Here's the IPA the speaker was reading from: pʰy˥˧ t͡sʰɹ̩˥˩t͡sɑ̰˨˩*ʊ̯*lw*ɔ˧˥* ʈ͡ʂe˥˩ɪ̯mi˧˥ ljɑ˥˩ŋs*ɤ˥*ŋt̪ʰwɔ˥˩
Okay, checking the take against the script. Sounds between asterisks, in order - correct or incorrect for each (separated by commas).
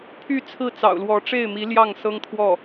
correct, correct, correct